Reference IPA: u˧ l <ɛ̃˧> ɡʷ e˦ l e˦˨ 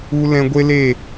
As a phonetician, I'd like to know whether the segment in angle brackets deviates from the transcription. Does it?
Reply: no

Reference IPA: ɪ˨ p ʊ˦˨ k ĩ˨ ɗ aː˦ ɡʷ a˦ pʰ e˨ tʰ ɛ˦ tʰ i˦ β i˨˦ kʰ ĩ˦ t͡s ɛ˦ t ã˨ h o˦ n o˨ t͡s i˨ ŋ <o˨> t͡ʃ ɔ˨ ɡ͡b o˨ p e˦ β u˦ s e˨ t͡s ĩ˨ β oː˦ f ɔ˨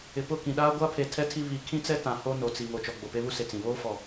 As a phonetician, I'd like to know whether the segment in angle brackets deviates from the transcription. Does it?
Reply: no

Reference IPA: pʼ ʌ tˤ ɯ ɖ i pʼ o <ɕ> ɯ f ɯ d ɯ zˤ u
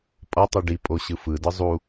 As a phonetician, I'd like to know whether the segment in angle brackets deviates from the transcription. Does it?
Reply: no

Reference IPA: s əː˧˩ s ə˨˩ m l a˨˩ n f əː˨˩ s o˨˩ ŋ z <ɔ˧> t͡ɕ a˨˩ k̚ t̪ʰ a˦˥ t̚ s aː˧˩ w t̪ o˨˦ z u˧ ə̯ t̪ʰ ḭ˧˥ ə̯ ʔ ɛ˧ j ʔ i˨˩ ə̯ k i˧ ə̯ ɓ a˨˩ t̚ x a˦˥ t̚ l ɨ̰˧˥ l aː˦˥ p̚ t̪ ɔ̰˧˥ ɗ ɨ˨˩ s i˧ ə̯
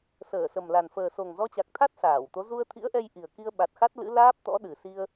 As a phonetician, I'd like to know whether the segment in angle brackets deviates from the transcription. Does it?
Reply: no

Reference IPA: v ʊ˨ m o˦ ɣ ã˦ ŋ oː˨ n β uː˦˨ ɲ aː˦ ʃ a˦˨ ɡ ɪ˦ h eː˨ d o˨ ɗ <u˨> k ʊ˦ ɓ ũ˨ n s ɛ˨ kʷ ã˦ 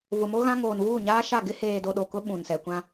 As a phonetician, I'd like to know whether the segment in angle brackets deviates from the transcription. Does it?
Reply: yes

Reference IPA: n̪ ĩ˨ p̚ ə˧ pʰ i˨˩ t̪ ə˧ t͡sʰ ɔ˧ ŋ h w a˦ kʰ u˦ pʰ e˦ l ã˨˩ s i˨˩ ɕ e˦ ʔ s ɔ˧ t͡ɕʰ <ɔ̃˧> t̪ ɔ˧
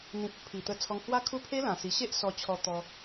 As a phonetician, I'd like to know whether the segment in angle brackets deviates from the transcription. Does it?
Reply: yes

